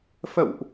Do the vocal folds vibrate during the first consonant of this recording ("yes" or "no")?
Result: no